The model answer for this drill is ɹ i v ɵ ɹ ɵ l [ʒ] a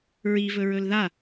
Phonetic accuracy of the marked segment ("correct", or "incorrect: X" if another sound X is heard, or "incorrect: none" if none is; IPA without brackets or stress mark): incorrect: ð